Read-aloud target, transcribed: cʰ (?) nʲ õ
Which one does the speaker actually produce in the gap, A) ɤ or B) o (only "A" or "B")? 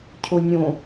B